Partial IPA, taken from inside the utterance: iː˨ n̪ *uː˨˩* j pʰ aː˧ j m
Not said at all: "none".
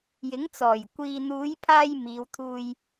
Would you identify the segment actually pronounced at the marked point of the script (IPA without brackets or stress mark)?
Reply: uː˨˧